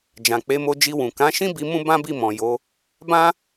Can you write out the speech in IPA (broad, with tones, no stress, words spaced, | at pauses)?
d͡ʒã˨k͡pe˨˦mo˧d͡ʒi˧ wũ˨kã˨˦ʃĩ˦bi˧ mũ˦bã˦bi˦˨mɔ̃˨ jo˨˦ | bã˦